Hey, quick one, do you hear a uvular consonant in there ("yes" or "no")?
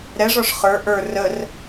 yes